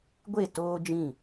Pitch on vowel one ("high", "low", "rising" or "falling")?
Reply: falling